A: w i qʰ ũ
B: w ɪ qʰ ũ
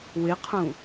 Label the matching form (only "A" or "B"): B